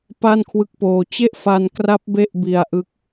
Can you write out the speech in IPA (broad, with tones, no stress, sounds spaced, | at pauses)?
p a˥˩ n kʰ w ɯ˦˥ k̚ p oː˧ t͡ɕ e˥˩ ʔ f a˧ n k r a˦˥ p̚ b e˥˩ ʔ b i˧ a̯ ʔ ɯ˦˥ k̚